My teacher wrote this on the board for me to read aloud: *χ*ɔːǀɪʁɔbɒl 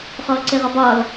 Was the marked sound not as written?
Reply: no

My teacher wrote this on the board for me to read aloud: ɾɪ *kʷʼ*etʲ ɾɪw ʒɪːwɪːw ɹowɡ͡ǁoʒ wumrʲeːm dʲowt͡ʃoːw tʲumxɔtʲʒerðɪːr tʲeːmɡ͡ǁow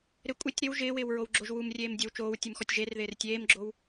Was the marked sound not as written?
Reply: no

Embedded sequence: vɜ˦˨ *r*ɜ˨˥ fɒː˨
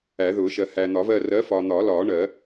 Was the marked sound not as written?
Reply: no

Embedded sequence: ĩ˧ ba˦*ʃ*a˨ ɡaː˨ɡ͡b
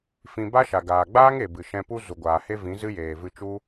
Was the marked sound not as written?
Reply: no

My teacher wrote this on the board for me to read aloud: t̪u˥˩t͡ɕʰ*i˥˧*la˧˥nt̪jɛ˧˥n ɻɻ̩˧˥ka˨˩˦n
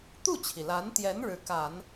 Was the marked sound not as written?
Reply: yes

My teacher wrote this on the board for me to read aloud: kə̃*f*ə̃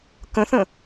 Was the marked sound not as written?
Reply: yes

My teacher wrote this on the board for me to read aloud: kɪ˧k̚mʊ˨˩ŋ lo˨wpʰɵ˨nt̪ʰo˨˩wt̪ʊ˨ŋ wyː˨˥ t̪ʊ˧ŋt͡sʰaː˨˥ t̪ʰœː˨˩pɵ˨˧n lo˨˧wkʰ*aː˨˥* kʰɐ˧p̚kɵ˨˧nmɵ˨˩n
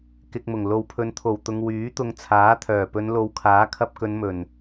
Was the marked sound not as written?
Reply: no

